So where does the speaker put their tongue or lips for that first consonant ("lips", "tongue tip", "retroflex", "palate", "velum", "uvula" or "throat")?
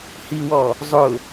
throat